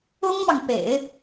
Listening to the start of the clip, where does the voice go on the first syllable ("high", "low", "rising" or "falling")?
high